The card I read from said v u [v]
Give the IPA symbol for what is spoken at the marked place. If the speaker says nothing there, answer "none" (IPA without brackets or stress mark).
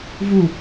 none